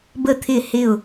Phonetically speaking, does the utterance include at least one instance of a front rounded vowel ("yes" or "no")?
no